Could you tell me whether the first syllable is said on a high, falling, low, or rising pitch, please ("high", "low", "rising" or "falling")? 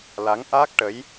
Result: rising